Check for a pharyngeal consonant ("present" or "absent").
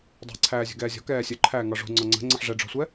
present